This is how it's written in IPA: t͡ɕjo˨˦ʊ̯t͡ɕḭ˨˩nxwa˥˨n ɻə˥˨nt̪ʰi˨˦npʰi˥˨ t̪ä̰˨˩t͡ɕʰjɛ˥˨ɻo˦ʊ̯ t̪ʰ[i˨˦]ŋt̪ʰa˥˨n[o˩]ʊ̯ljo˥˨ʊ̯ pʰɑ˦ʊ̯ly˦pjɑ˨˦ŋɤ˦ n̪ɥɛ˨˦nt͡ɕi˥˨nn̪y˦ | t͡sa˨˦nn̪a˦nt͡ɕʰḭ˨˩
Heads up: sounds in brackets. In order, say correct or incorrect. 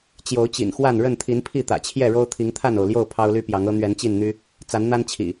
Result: correct, correct

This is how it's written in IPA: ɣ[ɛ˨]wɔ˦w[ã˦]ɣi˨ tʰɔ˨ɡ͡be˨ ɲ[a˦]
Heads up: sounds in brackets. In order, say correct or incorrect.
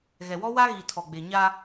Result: correct, incorrect, correct

